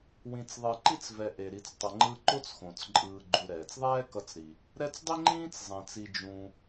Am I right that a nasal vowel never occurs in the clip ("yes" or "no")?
no